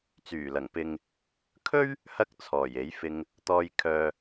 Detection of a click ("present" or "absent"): absent